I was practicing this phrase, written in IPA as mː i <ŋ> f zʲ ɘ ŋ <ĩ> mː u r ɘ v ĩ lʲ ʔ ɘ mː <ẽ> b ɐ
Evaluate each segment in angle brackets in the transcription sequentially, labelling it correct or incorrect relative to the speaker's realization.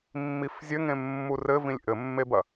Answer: incorrect: none, incorrect: ẽ, incorrect: e

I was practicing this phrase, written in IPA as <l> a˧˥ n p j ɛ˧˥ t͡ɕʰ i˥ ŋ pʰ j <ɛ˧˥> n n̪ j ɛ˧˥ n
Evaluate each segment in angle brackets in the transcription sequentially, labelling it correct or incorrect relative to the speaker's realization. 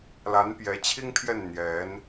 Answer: correct, incorrect: ɛ˥˩

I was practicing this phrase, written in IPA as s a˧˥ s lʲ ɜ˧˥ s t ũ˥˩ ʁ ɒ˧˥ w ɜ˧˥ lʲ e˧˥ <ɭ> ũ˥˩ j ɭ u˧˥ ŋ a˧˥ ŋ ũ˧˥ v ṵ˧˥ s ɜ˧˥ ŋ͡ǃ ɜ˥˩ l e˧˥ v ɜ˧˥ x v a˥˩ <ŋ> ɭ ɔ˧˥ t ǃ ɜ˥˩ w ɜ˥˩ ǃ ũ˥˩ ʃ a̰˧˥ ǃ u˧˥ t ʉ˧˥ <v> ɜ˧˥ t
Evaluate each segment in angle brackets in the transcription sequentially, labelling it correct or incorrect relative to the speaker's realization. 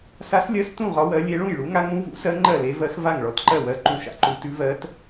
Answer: correct, correct, correct

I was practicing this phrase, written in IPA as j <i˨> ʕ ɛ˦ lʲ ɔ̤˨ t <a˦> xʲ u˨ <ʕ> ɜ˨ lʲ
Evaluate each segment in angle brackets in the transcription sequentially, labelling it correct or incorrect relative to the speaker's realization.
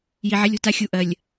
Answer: correct, correct, incorrect: ʔ

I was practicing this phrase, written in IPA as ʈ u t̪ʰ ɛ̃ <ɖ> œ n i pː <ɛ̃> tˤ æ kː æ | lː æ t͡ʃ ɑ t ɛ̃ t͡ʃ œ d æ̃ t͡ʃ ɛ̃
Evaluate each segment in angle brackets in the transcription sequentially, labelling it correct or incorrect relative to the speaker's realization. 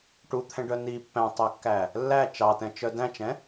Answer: correct, incorrect: æ̃

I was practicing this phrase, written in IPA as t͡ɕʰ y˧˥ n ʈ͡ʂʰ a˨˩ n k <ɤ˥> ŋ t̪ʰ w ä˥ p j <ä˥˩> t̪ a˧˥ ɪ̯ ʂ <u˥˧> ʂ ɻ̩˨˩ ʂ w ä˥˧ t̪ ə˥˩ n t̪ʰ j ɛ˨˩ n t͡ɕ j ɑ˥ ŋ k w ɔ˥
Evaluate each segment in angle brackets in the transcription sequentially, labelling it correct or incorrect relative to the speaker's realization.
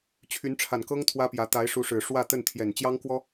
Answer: correct, incorrect: ä˧˥, incorrect: u˧˥

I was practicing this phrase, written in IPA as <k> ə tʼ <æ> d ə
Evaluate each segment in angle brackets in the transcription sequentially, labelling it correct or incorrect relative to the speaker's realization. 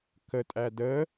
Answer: correct, correct

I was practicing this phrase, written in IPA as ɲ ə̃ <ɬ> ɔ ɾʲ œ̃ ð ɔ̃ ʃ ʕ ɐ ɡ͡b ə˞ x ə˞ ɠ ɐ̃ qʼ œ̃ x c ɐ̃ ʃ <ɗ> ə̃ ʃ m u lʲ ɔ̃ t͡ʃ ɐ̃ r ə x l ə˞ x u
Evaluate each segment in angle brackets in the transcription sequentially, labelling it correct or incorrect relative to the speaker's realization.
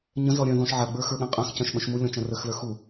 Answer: incorrect: z, incorrect: ɓ

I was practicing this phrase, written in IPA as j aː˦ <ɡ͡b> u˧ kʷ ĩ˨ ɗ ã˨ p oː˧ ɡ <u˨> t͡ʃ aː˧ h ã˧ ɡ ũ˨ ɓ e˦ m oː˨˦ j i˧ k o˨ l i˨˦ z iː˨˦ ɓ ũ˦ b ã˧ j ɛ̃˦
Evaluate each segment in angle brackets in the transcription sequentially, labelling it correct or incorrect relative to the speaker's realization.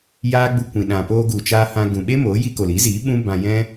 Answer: correct, correct

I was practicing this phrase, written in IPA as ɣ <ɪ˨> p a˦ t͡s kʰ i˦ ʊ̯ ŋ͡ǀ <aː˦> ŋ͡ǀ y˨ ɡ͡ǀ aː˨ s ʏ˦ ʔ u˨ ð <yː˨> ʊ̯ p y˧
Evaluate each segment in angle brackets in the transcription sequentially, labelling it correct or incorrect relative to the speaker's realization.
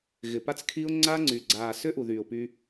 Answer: correct, incorrect: a˦, correct

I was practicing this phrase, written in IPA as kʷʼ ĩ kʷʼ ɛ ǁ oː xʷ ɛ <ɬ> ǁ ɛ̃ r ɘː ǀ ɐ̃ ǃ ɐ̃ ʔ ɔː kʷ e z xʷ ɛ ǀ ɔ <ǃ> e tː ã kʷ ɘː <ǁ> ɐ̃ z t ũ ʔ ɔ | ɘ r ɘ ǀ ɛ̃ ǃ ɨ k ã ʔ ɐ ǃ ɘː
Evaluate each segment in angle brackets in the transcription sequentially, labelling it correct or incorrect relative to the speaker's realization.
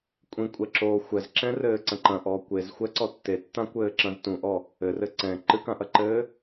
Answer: incorrect: z, incorrect: tː, correct

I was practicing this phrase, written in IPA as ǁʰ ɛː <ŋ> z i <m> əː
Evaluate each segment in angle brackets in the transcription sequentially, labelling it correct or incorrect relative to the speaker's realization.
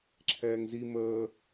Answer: correct, correct

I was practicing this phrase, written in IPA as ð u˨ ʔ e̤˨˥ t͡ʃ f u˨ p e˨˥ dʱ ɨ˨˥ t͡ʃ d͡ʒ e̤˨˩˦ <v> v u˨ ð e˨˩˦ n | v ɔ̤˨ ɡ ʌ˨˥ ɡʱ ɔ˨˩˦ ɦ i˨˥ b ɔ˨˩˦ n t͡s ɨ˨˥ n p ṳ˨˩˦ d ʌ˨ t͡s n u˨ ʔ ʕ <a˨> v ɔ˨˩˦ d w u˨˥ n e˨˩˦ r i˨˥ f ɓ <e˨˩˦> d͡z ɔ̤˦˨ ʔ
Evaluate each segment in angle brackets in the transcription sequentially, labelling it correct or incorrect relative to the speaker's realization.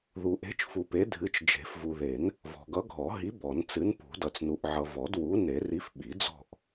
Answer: incorrect: f, incorrect: ʌ˨, incorrect: i˨˩˦

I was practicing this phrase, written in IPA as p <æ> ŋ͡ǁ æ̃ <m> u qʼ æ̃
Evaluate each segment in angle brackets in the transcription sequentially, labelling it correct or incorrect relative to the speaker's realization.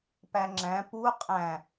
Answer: correct, incorrect: p

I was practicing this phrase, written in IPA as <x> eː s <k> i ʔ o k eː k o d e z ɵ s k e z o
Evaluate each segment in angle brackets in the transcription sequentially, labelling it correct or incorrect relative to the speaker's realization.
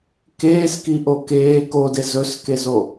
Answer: incorrect: k, correct

